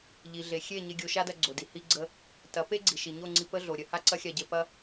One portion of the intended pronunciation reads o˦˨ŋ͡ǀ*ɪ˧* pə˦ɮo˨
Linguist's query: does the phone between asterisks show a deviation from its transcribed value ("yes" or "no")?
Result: yes